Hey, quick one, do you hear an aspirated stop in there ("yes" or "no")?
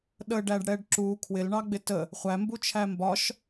yes